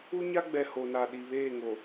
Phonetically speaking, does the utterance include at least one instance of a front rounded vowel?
no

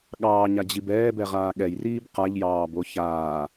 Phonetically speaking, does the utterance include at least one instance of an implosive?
yes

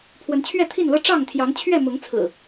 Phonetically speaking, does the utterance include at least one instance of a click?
no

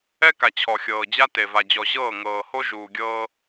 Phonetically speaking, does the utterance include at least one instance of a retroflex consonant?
no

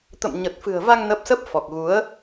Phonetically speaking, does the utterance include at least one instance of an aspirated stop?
no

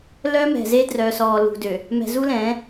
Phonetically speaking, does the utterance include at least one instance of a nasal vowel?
yes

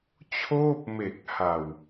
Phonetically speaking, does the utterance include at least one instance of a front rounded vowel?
no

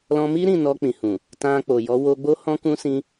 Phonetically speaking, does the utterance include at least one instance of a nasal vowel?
yes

